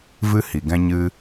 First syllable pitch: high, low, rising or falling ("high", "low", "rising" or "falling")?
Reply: high